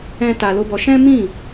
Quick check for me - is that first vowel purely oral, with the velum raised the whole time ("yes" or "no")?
no